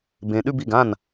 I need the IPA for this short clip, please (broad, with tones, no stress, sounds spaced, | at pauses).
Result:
b ẽ˨ ɗ ʉ˥˧ b i˥˩ ɡ ã˥˩ n